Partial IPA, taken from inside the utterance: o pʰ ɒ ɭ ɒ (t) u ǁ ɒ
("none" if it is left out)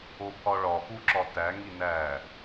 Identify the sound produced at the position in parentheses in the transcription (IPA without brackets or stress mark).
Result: p